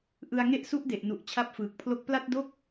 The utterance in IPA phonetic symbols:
ʔ ɯ˧ a̯ ŋ e˥˩ ʔ s u˦˥ ʔ d e˨˩ ʔ n u˨˩ ʔ t͡ɕʰ a˦˥ p̚ f ɯː˨˩ k̚ pʰ l o˦˥ k̚ p l a˥˩ t̚ d o˥˩ k̚

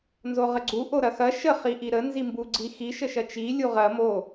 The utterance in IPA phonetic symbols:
n z o ʁ ə ɡ͡ǀ u ʔ o ɾ ɐ x ɐ ʃ ə χ i ʔ i ɾ ə n z i m b u ɡ͡ǀ i x i ʃ ə ʃ ɐ t͡ʃ i lʲ u ʁ ɐ m o

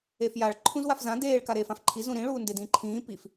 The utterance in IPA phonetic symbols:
e f j a ɭ ǃʰ ũ z w a f z ã d eː ɭ k a ɾ eː f ã f ǃʰ i z ũ ɾ ĩ ɭ uː n d e d ĩː ǃʰ ĩː p i f

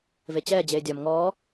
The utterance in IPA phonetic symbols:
v e t͡ɕ ɛː d͡ʑ eː dʲ ɒ m ŋ ɔː

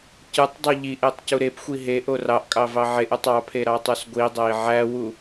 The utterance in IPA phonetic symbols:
c ɯ tˤ dˤ u ʎ i ʔ e tˤ c u ɾ e p xʷ i ɦ e ʔ o r ɑ ʔ kʼ ɑ v ɑ ʕ e ʔ ɯ tˤ ɑ pʰ e ɾ ɑ tˤ o s ɡʷ i dˤ æ i̯ ʕ æ w u

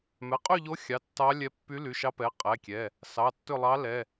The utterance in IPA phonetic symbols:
m ɛ˩˧˩ qʼ y˦˨ ʎ o˧˥ xʲ ɑ˩˧˩ tː ɑ˧˥ lʲ ɛ˧˥ pː y˧˥ l y˩˧˩ ʃ ɑ˧˥ p ɛ˩˧˩ qʼ ɛ˩˧˩ kʲ ɛ˩˧˩ | s ɑ˩˧˩ tː ɵ˦˨ lˠ ɑ˧˥ l ɛ˩˧˩

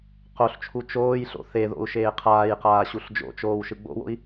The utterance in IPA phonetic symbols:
q o ɬ t͡ʃʰ u t͡ʃ oː j ɬ o̰ θ e ð o̰ u̯ ʃ eː qʰ aː j q aː ɕ u ɬ d͡ʒ o̰ t͡ʃ oː w ʃ ɯ ɡ͡b o̰ w o̰ i̯

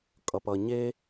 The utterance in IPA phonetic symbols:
kʼ ʌ˩ p ʌ˩ ɲ e˦

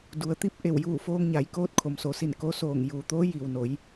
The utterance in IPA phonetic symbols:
d u˩ ə̯ t̪ i˥˨ p̚ ʔ e˧˩ w j uː˧˩ f oː˧ ŋ ɲ a˩˧ j k oː˧˥ t̚ kʰ o˩ m s o˩˧ s i˧˩ n k o˧˥ s oː˧˩ ŋ j uː˩ t̪ oː˧˥ j i˩ w n o˩˧ j

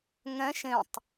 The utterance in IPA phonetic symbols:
ŋ ɛ̃ ʃ ẽ tˤ

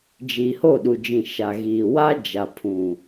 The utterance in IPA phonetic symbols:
d͡ʒ iː˨ h o˦˨ ɗ u˨ d͡ʒ ĩ˨ ʃ a˨ ɣ iː˨ w a˦ d͡ʒ a˨ pʰ ũ˨

